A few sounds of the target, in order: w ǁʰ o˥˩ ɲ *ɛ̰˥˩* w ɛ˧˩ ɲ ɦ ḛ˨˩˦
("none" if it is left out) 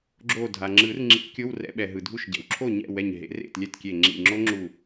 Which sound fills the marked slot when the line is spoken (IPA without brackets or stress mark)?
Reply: ɛ̰˥˩